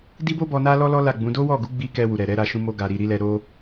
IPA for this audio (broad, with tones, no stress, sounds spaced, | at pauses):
d i˦ b o˦ b ɔ˧ n a˦ l ɔ˦ l ɔ˦ l a˦˨ ɡ͡b ũ˨˦ d o˦ w ɔ˦˨ ɡ u˨˦ ɡ͡b i˧ k ɛ˧ w u˨ ɾ ɛ˨ ɾ ɛ˧ ɾ a˧ ʃ ũ˧ m o˧ ɡ a˨ ɾ i˨ ɾ i˨˦ l ɛ˧ ɾ o˦